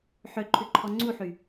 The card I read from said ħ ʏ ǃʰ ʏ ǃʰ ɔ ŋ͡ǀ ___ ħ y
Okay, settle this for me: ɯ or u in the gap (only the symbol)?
u